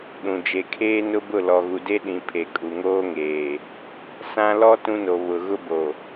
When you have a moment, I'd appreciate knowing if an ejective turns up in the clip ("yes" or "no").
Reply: yes